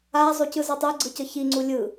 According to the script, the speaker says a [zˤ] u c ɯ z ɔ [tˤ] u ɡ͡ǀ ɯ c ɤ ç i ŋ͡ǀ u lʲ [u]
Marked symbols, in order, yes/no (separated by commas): yes, yes, no